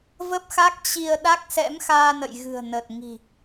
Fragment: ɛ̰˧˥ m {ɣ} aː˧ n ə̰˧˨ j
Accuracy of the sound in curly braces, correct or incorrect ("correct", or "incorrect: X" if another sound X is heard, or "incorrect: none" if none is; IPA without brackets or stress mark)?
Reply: incorrect: x